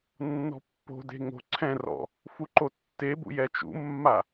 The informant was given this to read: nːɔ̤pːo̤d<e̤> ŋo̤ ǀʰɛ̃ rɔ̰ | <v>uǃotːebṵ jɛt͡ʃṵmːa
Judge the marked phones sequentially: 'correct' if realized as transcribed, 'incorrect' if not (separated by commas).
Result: correct, incorrect